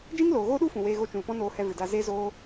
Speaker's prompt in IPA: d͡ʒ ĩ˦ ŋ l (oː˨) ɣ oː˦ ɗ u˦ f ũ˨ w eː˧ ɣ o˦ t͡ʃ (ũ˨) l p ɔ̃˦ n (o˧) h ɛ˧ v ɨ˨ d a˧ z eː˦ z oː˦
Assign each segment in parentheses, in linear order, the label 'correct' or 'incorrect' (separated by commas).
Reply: correct, correct, incorrect